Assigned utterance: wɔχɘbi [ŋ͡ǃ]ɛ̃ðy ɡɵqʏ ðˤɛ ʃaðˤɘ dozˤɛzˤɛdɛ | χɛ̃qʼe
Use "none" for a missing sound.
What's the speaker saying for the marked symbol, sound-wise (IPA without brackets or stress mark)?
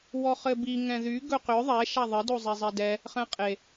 ŋ